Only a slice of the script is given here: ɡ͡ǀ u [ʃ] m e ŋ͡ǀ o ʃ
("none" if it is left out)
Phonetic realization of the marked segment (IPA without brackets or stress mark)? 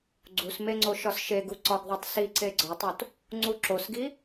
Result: s